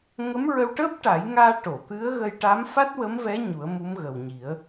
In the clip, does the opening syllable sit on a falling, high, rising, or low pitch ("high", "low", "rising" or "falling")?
rising